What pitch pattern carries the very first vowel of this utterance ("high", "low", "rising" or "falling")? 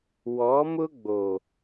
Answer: rising